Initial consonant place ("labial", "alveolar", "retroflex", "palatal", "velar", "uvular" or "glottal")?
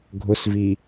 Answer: velar